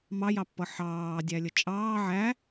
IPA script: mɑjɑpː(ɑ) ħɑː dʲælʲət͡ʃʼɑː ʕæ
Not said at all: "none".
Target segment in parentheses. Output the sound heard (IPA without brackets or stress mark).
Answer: ʌ